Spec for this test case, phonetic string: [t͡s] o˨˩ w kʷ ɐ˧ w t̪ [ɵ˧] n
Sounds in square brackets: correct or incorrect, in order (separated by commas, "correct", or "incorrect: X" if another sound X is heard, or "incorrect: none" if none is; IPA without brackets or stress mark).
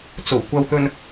correct, correct